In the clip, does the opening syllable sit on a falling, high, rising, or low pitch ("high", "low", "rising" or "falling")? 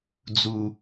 high